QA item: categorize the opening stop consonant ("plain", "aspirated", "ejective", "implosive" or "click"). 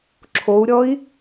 click